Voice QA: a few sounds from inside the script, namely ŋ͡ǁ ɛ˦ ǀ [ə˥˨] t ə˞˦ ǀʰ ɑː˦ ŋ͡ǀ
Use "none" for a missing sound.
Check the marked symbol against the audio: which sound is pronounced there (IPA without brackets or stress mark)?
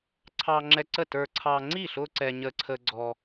ə˥˨